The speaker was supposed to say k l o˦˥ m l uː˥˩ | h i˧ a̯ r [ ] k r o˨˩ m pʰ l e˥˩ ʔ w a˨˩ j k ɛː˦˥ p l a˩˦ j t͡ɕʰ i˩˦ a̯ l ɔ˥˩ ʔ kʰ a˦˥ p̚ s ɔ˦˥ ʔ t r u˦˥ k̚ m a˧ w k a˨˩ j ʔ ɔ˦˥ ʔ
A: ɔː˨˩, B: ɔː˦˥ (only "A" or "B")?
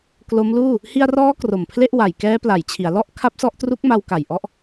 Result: B